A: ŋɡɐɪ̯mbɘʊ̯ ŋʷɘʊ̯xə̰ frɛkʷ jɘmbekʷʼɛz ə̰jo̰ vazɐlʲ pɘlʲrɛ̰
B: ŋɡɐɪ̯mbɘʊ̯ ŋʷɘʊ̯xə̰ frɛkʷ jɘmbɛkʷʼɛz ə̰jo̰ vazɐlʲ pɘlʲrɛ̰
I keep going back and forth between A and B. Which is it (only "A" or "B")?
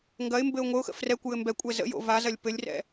B